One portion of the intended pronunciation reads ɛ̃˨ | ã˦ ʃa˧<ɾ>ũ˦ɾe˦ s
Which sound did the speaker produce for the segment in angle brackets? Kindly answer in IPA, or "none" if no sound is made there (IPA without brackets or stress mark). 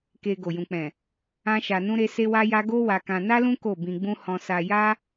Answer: n